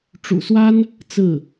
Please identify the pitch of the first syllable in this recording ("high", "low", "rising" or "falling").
low